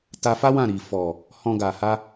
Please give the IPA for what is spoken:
ta˧fa˦ wã˦˨ɾi˨ fɔ˨ | hɔ̃˧ɡa˨ha˧

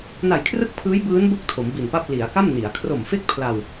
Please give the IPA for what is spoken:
na˨˩jkʰrɯ˥˩k̚pʰɯː˦˥j bɯː˦˥n bo˥˩k̚ tʰo˩˦mbi˨˩npa˥˩p̚ li˩˦a̯ka˥˩m ni˩˦a̯ kʰro˨˩mfe˥˩k̚ pʰla˧w

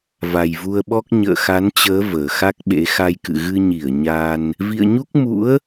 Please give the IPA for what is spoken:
va˨˩jvu˧ə̯ɓɔ˦˥k̚ ɲə̰ː˧˨xa˨˦nt͡ɕəː˨˦ vəː˨˩xa˦˥k̚ɓḛ˧˥ xa˧jkɨ̰˧˨ ɣɨ˧ɲi˧˩ə̯ ɲa˧n | vḭ˧˨ə̯ɲu˦˥k̚mṵ˧˥ə̯

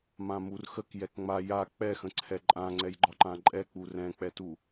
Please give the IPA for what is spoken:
mãmurxək jɛkŋ͡ma ja k͡pɛxə̃ ǀʰɛǃʼã ŋ͡ǀɛjɡ͡ǃɒǃãǃʼɛ k͡purɛ̃k͡pɛtu

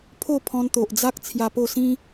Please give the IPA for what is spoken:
pʰo˥˧pʰɔ̃˧nt̪o˨ʔd͡za˦k̚ t͡sʰja˧po˥˧ sĩ˦

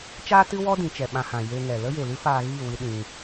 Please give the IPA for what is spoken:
t͡ʃaː˦tɨ˦ wɔ˦ dĩ˨˦t͡ʃɛ˨ɓã˧hã˨ je˧ŋɛ˨ lə˦je˨lɨ˦faː˧ ɣi˦˨ wɨ˦ɗĩ˧

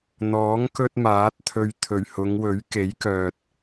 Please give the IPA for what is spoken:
n̪ɔː˨˥ŋ kɵ˥t̚maː˨˥t̚t̪ʰɵ˧ɥ t̪ʰɵ˨˩ɥhʊ˨˧ŋwɵ˨˥ɥ ke˨˥jkœː˨t̚

